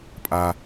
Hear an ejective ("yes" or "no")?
yes